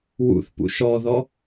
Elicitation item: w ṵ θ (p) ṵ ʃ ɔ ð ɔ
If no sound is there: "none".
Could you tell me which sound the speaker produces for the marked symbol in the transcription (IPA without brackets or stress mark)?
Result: p